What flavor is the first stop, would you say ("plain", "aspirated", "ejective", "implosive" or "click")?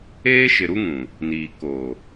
plain